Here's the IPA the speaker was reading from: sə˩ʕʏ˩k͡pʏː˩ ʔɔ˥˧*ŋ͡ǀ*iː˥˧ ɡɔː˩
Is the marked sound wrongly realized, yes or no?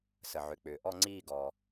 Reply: no